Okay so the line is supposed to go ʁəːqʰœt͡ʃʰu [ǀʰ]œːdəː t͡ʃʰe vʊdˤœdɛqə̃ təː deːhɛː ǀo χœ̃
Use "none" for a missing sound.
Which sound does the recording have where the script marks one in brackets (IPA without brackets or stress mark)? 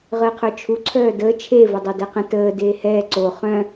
ǀʰ